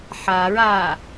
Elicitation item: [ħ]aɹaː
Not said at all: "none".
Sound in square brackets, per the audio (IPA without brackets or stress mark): ħ